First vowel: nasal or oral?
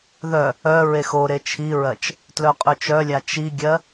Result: oral